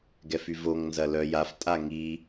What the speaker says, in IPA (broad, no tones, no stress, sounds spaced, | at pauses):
ɡ ɛ f y v o ŋ n z ɐ l œ j a f tʼ a ŋ i